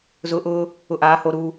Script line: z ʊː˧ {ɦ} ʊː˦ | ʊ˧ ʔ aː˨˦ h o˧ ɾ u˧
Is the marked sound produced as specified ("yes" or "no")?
no